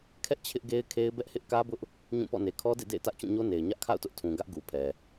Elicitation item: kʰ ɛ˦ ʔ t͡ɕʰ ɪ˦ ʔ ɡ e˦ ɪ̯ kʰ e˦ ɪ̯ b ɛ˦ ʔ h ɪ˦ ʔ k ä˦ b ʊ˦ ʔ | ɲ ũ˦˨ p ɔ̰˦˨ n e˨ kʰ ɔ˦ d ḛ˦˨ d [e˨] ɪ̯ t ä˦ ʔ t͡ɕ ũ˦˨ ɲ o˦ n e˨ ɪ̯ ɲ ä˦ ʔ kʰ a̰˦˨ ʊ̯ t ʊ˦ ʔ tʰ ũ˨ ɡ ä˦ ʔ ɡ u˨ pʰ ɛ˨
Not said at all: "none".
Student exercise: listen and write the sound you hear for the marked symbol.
ḛ˦˨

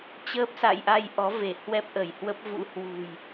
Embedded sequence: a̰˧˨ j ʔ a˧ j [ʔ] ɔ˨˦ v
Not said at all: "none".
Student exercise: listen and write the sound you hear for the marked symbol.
ʔ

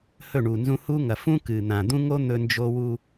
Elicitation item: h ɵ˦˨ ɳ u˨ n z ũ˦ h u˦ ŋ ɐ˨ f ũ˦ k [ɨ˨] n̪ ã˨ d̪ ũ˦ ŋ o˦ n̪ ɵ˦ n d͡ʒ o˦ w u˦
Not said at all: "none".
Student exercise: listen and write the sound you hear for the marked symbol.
ɨ˨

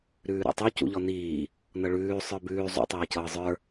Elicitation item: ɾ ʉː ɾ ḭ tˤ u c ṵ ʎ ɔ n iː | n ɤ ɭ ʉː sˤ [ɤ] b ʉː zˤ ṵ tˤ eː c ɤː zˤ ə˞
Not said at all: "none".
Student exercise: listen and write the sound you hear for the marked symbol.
ə˞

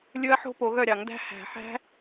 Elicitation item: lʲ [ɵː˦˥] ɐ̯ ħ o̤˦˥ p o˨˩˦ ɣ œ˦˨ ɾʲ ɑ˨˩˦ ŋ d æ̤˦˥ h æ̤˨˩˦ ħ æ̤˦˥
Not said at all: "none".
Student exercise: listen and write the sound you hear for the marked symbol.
ɵ˦˥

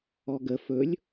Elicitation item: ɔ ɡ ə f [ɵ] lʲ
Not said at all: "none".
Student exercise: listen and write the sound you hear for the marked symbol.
ɵ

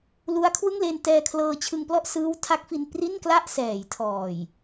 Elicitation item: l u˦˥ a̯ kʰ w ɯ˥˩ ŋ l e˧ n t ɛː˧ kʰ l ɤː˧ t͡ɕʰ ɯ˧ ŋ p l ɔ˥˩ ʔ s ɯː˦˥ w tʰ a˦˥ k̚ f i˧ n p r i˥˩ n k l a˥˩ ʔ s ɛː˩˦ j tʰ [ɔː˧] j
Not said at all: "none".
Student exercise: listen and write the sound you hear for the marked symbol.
ɔː˨˩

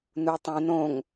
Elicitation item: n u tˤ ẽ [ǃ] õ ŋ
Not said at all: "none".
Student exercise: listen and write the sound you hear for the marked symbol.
n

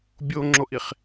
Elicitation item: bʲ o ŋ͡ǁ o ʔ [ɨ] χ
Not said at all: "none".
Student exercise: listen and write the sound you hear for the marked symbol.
i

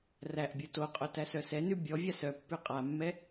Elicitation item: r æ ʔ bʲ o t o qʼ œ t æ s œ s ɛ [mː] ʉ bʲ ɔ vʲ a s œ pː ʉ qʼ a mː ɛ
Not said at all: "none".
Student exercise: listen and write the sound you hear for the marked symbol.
n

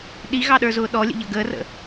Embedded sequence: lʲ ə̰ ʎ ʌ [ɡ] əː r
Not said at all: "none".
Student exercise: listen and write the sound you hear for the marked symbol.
ɡ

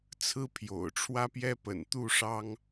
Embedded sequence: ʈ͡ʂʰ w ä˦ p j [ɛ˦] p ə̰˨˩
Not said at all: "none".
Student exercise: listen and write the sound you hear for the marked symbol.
ɛ˦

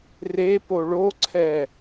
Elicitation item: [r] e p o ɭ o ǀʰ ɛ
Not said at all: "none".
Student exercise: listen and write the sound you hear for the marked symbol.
r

